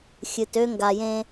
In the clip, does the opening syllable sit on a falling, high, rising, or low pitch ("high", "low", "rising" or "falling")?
low